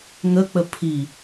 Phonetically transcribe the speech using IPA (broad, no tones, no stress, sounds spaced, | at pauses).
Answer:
ŋ ə k͡p ə pʰ i